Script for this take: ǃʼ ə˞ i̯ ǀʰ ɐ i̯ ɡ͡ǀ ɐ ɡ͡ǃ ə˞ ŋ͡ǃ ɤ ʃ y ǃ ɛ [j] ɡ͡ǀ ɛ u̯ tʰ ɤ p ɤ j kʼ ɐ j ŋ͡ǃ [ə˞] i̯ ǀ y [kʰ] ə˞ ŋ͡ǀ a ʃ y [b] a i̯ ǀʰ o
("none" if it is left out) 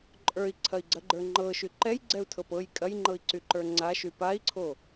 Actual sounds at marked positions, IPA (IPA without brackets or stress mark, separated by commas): j, ɤ, ǃ, p